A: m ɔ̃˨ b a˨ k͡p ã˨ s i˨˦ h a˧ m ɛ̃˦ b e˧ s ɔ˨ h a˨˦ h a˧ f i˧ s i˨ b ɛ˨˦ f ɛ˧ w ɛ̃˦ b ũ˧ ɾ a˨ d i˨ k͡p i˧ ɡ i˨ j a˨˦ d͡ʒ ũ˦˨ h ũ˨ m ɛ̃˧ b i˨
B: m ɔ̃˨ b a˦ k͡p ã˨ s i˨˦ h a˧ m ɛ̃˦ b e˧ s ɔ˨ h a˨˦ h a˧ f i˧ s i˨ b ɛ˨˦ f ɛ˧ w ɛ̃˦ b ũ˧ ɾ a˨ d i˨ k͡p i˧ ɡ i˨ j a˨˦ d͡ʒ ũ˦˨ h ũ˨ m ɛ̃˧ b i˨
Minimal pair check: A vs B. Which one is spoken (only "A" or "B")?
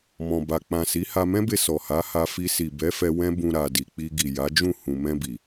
A